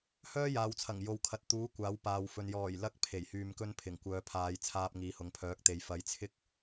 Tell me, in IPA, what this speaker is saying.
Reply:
h œː˥ j aː˨ w t͡sʰ ɐ˨˩ ŋ j o˨ w kʰ ɐ˨ t̚ t̪ uː˨˥ kʷ aː˨˥ w p aː˨ w f ɵ˨ n j ɔː˨˩ j l ɐ˨˥ k̚ pʰ e˨˩ j h yː˧ m k ɵ˥ n pʰ ɪ˨˩ ŋ kʷ œː˨˧ pʰ aː˨˧ j t͡sʰ aː˧ p̚ ŋ iː˨ h ʊ˨ ŋ pʰ œː˨˥ k̚ t̪ e˨ j f ɐ˨˧ j t͡sʰ ɪ˥ k̚

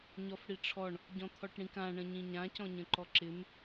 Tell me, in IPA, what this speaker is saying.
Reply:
ɲ ɔ f ɽ i ʈ͡ʂʰ ɔ ɳ | ɟ ɔ̃ t̪ʰ ɔ ʈ ɽ ĩ k ã ɳ ə̃ ɲ ĩ ɲ ã c ɔ̃ ɲ ə̃ ǃ ɔ ǁ ɪ m

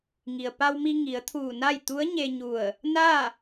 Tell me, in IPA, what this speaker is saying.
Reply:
ŋ i˩ ə̯ p a˧ w m i˧ ŋ i˩˧ ə̯ t̪ʰ uː˧˩ n a˥˨ j t̪ u˧˥ ə̯ ɲ e˧ ɲ u˧˩ ə̯ | n a˥˨

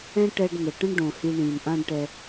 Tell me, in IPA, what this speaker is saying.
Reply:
ɛ̃˦ ʈ ɛ˧ ɖ n ə˨ ʈ ə̃˦ ɳ ɖ õ˨ h i˧ ɳ ĩ˨ n ʔ ã˦ ɖ ʈ ɛ˧

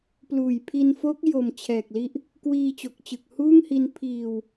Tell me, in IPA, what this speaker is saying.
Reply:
p l uː˨˩ j pʰ i˧ n f o˦˥ k̚ j o˨˩ m t͡ɕʰ ɛː˨˩ k̚ l i˦˥ ʔ | k w iː˧ t͡ɕ o˨˩ k̚ t͡ɕ ɯ˨˩ k̚ h uː˥˩ ŋ h i˧ n pʰ iː˧ w

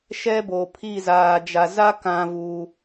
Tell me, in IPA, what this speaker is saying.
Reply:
ʃ ɛ˦ b o˨ pʰ i˦˨ z aː˨ d͡ʒ a˨ z a˦ k ã˦ v u˦

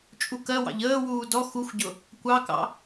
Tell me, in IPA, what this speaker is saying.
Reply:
t͡ʃʼ u k ɜ w ɑ̰ ʎ əː w uː d ɔ x u xʷ ɟ ʊ | kʷ ɑ k ɑ̰

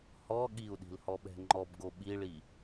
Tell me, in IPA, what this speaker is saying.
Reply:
h ɔ ɠ i u̯ ɗ i̤ l h ɔ ɓ ɛ̤ ŋ͡ǃ ɔ b ɡ o ɓ i ɭ i

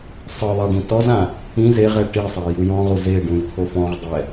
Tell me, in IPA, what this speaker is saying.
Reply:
sˤ ɯ ðˤ ɛ ɖ ĩ t ɔ z ã | ĩ z e ʁ ɛ ʈ i sˤ a j ɯ j ɔ̃ ʁ u z e ɖ ũ j t̪ʰ o f ɔ̃ ʁ dˤ ɛ

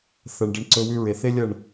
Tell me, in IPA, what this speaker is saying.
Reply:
θ ɐ˨ ɳ ɖ ɐ˧ ɳ ǀ ɵ˧ w ʉ˦ ɹ e˨ θ e˦ lʲ ɐ˦˨ ɳ

